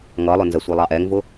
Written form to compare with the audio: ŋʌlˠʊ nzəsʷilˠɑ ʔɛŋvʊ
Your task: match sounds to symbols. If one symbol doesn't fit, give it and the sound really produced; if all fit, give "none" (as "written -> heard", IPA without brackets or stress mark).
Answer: none